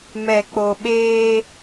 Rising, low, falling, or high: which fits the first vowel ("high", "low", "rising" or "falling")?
low